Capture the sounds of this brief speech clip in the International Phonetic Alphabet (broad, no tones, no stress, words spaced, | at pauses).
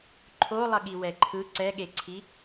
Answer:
ǃʰolˠʌɠi wɛǃʰɯ ǀɛɠeǀʰi